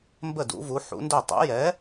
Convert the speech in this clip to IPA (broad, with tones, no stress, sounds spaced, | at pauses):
m b ə˥˩ d ṵ˨˥ v u˨˥ ħ ṵ˨˥ n d ɵ˥˩ tˤ ɛ̰˨˥ j ɛ˨˥